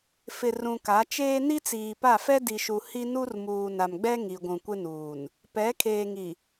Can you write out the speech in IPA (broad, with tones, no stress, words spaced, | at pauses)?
fɪ˨ rũ˨ka˨˦ t͡ʃeː˦ ni˦t͡siː˨pa˦˨fɛ˦ di˨ʃu˨ hi˦ nu˦rmuː˨na˨mɡ͡bɛ˦ ŋi˨ɡʷũ˨kʷɪ˦nuː˨n | pɛ˨˦kʰeː˨ŋi˨